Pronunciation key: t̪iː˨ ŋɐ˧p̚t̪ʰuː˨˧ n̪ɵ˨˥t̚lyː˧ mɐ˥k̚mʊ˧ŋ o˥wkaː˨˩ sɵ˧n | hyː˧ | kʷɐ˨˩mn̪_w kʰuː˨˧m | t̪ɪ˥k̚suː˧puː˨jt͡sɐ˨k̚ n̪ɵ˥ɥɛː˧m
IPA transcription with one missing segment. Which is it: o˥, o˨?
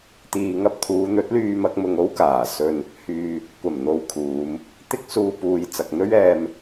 o˨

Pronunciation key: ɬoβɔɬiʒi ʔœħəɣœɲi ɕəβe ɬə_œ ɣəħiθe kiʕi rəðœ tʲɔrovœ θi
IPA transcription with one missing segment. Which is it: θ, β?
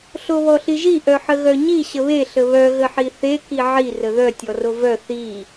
β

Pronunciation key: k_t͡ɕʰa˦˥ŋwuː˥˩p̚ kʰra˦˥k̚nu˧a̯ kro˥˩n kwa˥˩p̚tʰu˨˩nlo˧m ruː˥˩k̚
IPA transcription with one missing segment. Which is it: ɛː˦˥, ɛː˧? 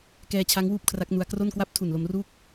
ɛː˧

